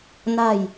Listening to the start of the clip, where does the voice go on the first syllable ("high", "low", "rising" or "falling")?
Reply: low